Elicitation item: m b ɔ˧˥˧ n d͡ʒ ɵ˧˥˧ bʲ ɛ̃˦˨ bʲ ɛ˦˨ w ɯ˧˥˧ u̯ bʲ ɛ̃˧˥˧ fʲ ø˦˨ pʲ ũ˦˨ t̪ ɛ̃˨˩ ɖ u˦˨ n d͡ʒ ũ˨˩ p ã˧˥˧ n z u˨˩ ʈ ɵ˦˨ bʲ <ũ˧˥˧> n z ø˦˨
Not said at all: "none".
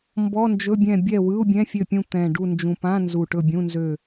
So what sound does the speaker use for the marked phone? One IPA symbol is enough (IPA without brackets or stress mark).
ũ˧˥˧